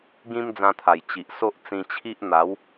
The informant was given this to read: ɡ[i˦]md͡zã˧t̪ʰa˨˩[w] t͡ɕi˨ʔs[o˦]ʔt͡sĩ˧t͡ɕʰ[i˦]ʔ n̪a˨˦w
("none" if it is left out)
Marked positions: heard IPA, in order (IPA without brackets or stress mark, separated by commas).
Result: ĩ˦, j, o˦, i˦